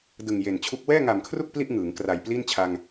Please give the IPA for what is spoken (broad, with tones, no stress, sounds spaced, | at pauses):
d ɯ˨˩ ŋ j e˨˩ n t͡ɕʰ u˦˥ k̚ w ɛː˥˩ ŋ a˨˩ m kʰ r u˥˩ k̚ p l i˥˩ ʔ ŋ ɯː˩˦ ŋ k r a˨˩ j p l iː˥˩ n t͡ɕʰ a˧ ŋ